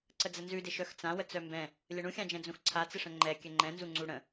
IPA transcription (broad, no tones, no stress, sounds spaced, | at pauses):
ǀ ə d͡z ə n z ʉ d ɪ ʃ œ x t͡s ã w ə t͡s œ m b ɛ̃ | lʲ ə ɳ ũ xʲ ã d͡ʒ ɛ̃ d͡z ũ x ǀʰ a t͡s ɪ ʂ ə̃ ŋ͡ǃ ɛ kʲ ɘ ŋ͡ǃ ɛ̃ n z u ŋ͡ǀ u ɽ ə̃